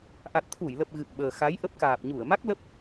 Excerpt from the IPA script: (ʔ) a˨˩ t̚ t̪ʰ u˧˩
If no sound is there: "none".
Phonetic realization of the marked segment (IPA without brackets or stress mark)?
ʔ